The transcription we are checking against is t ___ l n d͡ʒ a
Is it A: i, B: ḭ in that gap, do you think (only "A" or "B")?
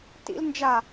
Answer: B